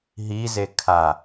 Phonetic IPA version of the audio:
ɦ i z e kʰ a

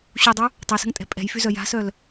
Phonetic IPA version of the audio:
ɕ u dˤ u | tˤ ɛ s ə̤ ŋ tʼ ɛ̤ pʼ ɛ̤ j f y z œ j a̤ s œ l

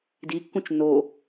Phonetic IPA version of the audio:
d i kː ũ t͡ʃ n o

